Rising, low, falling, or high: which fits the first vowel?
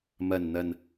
low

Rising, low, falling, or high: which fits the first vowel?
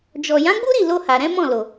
low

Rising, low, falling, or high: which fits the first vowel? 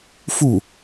falling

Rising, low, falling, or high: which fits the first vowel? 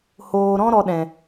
low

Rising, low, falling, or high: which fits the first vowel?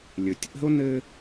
low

